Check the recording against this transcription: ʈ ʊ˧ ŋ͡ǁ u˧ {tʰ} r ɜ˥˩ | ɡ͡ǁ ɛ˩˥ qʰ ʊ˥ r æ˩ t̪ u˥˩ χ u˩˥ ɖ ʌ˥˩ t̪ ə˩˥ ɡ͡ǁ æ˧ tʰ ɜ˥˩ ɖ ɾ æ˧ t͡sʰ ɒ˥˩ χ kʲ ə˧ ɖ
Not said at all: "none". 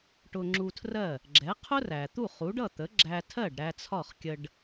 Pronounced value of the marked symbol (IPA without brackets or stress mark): tʰ